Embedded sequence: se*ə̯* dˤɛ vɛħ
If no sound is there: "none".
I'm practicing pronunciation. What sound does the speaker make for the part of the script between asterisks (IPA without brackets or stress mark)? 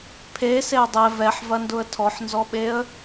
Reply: ʊ̯